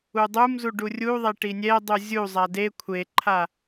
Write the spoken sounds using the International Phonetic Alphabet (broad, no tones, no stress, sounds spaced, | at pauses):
u dˤ u m z u ɖ u rʲ u ðˤ ɛ ʈ i nʲ ɛ dˤ u zʲ u zˤ a d e kʷʰ e ǃʰ a